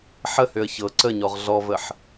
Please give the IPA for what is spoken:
ħ ə h ø ə̯ ç ɤ ǀ ə ɲ ɔ ʁ ɮ ɔ v ə ħ

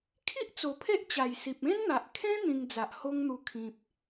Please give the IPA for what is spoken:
kʰ i˦ ʔ t͡s o˨˩ pʰ e˦ ʔ t͡ɕ a˨˩ j s i˨ p̚ ẽ˦ n n̪ a˨ ʔ kʰ ẽ˦ n̪ ĩ˧ ŋ d͡z a˨ ʔ h o˦ ŋ n̪ u˧ kʰ ĩ˨ p̚

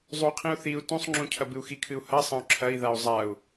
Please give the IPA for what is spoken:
zˤ u qʰ ĩ u̯ θ i u̯ t ũ sˤ ŋ͡ǁ ũ cʰ ɐ b ɨ u̯ x i kʰ ɨ u̯ h ɐ sˤ ɐ̃ u̯ ǁʰ ɐ i̯ ð a u̯ zˤ a u̯

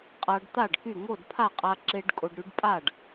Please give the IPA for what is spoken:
qʼ a˧ ɖ t̪ a˥˩ ɖ k y˥˩ ŋ o˥˩ d pʰ a˥˩ qʼ a˧ ǁ e˧ ɖ kʼ o˧ ɖ ɾ y˧˥ ɖ pʼ a˥˩ ɖ

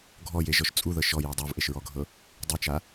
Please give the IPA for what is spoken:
ɡʱ ɔ j e ʒ ɔ ʃ t͡sʼ u ð ɤ ʃ ɔ j e dˤ o v ʔ e ʃ ɹ ɔ ɡʱ ɤ | dˤ i t͡ʃ a

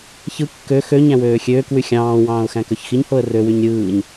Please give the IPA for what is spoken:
ç ɯ kː ø x ø ɲ æ̃ w øː xʲ øː k w y xʲ ɑ̃ː w ɑ̃ː ʊ̯ x æ̃ k ø ç x i ɲ h o ə̯ r ø w y ɲ ɾʲ ɯː ɲ

